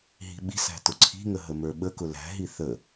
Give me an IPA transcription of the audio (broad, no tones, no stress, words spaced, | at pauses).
ɦi̤ɓi̤sæ̤ tʊǀʰi̤ŋə ɦəmə˞ɓəkʊ læ̤ɦi θə